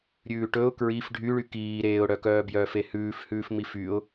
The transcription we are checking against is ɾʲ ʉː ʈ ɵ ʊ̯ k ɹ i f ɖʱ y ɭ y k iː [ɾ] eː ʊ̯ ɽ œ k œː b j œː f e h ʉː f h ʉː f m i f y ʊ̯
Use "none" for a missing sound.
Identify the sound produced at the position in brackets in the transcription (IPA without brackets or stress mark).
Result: ɾ